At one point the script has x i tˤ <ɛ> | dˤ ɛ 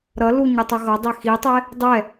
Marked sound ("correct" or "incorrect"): correct